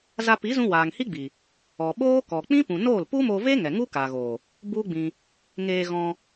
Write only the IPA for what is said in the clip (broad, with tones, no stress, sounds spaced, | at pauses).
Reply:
z a˧ p i˨˦ z ũ˧ w aː˨ ŋ h i˦ ɡ͡b i˨ | ɔ˨ ɓ oː˦ k ɔ˨ k͡p ĩ˦ p ũ˨ n oː˦˨ l p u˦ m o˧ v e˦ ŋ ɛ˨ ŋ u˦ k a˨ ɣ oː˨ | b u˦ ɡ͡b ĩ˧ | ŋ eː˧ ɣ ɔ̃˧